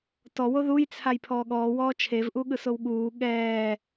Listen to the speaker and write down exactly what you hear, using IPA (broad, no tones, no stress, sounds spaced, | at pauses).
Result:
t ɔ w o ð u j t͡sʰ a j pʰ ɔː ɠ ɔː w ɔː t͡ʃʰ e v ʔ u ɠ ɯ s o w ɠ uː ɠ ɛː